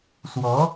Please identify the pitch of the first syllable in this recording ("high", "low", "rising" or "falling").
rising